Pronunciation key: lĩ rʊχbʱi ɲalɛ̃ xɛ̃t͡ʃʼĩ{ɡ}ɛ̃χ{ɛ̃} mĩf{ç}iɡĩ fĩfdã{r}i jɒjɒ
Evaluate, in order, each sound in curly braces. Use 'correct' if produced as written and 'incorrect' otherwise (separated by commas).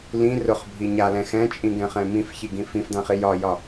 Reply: correct, correct, correct, incorrect